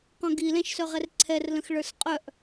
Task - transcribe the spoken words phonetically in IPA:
qɔ̃ɡilɛ̃ʃ sœʁɛrǀʰɛrlə̃x ɭə˞sqʼœʔ

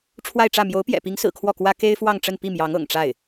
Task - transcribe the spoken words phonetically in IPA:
ʈ͡ʂʰwa˥˧ɪ̯ʈ͡ʂä˥˩ mjo˧˥ʊ̯pjɛ̰˨˩pi˧˥ŋsɹ̩˨˩ kʰwɔ˥˩kwä˥ ke˥ɪ̯fwɑ˥˧ŋʈ͡ʂə˥˧n pi˥˩mjɑ˧˥ŋ ɤ̰˨˩ŋʈ͡ʂa˥˩ɪ̯

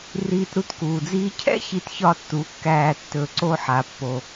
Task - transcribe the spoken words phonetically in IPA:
riː˧tɾu˧tkuː˨d͡ziː˦ cʰɛ̰˦ çi˧tçɒ˦˨ tːu˨˦kːæː˧ tːɵ˨ ǀo˦ħa˨pːo˨

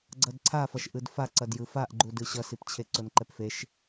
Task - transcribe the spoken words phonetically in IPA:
ɡ͡ǀʌdǀʰafʌʃ ʔɯdfa ǀʌdjɯfaʔɡ͡ǃu dɯɕʌsipt͡ɕʰe ǀonǃɛpfeʃ

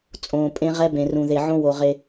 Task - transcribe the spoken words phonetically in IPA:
t͡sʼõː˨pʼẽ˦ ʁɛ˦bẽ˨rũ˨ ðe˨ʕõ˦wo˨ ʁe˦

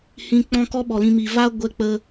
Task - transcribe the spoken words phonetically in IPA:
hĩ˧ k͡pɔ̃˦kɔ˦ɓɔ˨lĩ˧ mi˨va˦ ɡʷɛ˧k͡pə˧

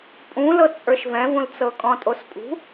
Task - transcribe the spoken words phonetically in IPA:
pʼũlɤ t͡sʼə˞ʃvɛ̃vũlt͡sɤ kʼɔ̃tʼospʼṳ

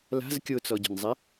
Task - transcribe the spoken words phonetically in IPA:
la̤z kʲot͡sɔɟo̤nzˤɛ

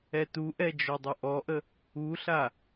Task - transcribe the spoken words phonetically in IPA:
ɛtuʔɛ d͡ʒɔdˤʊʔɔʔə | uɬa

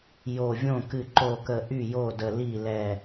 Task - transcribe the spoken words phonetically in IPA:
jo˧˩vʲõ˥˩ kɨ˧˩ǃo˧˩kə˧˩ ʔy˥˩jo˥˩də˧˩ li˥˩lɛ˧˩

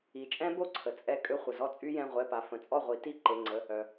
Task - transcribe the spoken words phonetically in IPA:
i˩˥t͡ʃʼɛ̃˦˥ bo˥˩ǀʰə˩ t͡sʼɛ˧ kʼø˧χʷə˩zɔ˥˩ t͡sʼy˧jɛ̃˩˧˩ʁʷɛ˩˧˩pa˩ fə̃˩˥t͡sʼɔ˥˩ʁʷi˩˥ ti˥˩ ǃe˩˧˩ŋ͡ǀə˩˧˩ | œ˩

